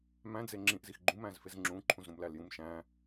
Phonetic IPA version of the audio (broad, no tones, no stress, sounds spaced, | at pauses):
m æ̃ d͡z e ŋ͡ǁ ĩ ʔ z i x ɡ͡ǃ ũ m æ̃ z f e z ŋ͡ǁ ũ ǃʰ ũ z ɾ ũ m l æ l j ũ m ʃ æ̃